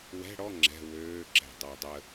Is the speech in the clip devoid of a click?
no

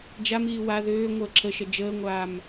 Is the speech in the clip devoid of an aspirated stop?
no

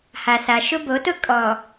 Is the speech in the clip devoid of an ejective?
no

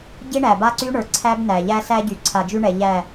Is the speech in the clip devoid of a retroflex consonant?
no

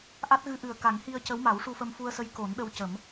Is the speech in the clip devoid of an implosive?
no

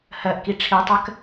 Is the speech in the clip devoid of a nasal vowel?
yes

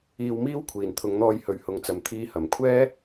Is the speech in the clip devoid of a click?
yes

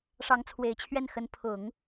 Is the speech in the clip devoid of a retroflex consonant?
no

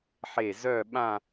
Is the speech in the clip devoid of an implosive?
no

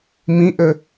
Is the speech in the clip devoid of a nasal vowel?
no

